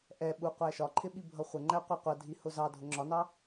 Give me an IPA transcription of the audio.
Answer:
ʔ ɛ ɓ u qʷ æ ʃ ɒ ǃʰ ɪ ɓ i bʱ ʌ χʷ ə ŋ͡ǃ æ qʷ ɑ qʷ ʌ dʱ i h ʊ z ɑ dʱ ʊ ŋ͡ǁ ɒ n ɑ

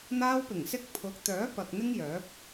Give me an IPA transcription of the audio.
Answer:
n̪ aː˧ w p ɪ˨˩ ŋ s ɪ˧ k̚ pʰ ʊ˨˥ k̚ t̪ œː˨˥ p ɐ˨ k̚ n̪ ɪ˥ ŋ j œː˨˥ p̚

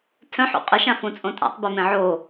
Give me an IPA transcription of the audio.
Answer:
tʰ œ̃ ħ ṵ qʼ ɯ ʃ ã f ũ t͡sʼ õ tʼ a̰ tˤ b e m ẽ ʕ o

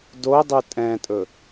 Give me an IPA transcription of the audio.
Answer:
d o dˤ ʉ tʼ ɛ̃ tʼ ɵ

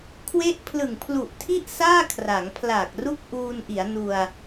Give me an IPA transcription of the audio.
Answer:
kʰ w e˦˥ ʔ pʰ l ɯ˨˩ ŋ pʰ l u˨˩ ʔ tʰ i˥˩ ʔ s aː˥˩ kʰ r a˩˦ ŋ pʰ l a˨˩ k̚ r u˥˩ k̚ ʔ uː˧ n ʔ i˩˦ a̯ n u˧ a̯

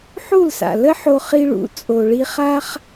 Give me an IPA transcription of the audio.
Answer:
ħ u˥˩ l s a̰˩ l ə˥ ħ o˧ χ i˧ ɭ ṵ˩˥ t͡sʼ o˩ ɭ i˧ χ a˥ χ

